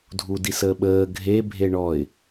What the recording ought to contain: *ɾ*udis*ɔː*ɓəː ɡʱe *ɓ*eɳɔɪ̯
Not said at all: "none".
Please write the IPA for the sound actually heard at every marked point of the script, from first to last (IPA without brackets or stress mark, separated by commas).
dʱ, əː, bʱ